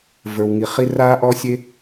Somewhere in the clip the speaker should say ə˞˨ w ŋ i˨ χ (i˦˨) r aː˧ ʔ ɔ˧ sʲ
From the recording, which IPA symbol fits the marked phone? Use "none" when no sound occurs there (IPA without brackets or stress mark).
i˧